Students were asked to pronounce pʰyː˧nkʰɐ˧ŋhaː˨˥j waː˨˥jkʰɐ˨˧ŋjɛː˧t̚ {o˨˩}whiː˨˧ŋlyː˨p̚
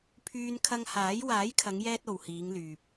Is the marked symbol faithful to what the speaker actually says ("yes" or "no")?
no